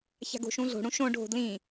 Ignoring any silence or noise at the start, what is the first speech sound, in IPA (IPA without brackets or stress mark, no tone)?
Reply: ç